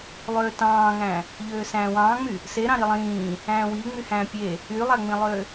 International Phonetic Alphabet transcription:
lˠ øː t ɑ̃ː ŋ æ̃ | ʎ øː s æ̃ː w ɑ̃ː ŋ͡m y | s e ɾ ɑ̃ ɾ i lˠ ĩː | æ̃ː w i ŋ͡m y h æ̃ː pʲ e | y lˠ æ ŋ͡m ĩ lˠ ø

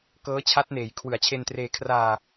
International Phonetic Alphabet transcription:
k ɤː˦˥ t͡ɕʰ a˦˥ t̚ n eː˩˦ j kʰ w ɯ˩˦ a̯ t͡ɕʰ e˧ n t r eː˧ kʰ r aː˧

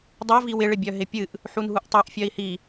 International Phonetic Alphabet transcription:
dˤ o v i w ɪ ɭ ɪ bʲ œ ɦ ɪ pʲ ɨ ʔ | ħ u n ɦ u ʔ tˤ ɨ ʔ fʲ œ i̯ h i

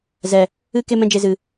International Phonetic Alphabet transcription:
z ɛ˨ | ɨ˦ k e˦ m ɛ̃˦ d͡ʒ e˧ z ɨ˨

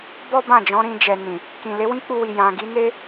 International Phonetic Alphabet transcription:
b ɔ˦ b ã˦˨ d͡ʒ ɔ̃˨˦ ɾ ĩ˧ d͡ʒ ɛ˨ n ĩ˨ | k ĩ˨ l e˨˦ w ĩ˦ k͡p u˧ w i˨ j ã˨ ɡ i˨˦ n e˦

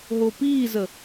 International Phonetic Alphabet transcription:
ɦ o p iː z ə

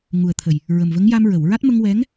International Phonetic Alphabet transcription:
ŋ u˨˩ ə̯ t̪ʰ ə˨˩ j | ɹ ə˨˩ m v ə˧˥ ŋ j a˧ m ɹ ə˨˩˨ w ɹ a˦˥ t̚ m ə˧ ŋ w ɛ˧˥ ŋ

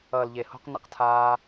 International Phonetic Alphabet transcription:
ʌː˨ l ʎ e˨ h o̤˧ q n ḛ˧ q tʰ aː˧

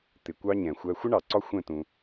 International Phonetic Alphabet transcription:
t̪ ɪ˨ kʷ ɑ˦ ɲ ɛ̃˨ xʷ æ˦ xʷ ə˦ ɳ ɑ˨ ǀ ɒ˦ xʷ ɛ̃˦˨ t ũ˦

